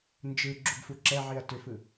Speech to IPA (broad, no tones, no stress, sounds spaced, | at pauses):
n d͡ʒ ɯ ɡ͡ǁ u ɡ f u ǁ ɛ ʕ i ɐ̯ t ʏ f ɯ